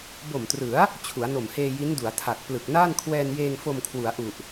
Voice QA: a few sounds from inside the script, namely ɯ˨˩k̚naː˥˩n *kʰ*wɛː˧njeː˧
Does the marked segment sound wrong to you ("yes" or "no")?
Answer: no